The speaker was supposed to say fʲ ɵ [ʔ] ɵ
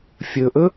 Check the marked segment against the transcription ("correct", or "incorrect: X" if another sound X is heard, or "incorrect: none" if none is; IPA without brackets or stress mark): correct